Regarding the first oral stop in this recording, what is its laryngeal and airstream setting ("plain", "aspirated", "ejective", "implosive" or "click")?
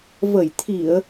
aspirated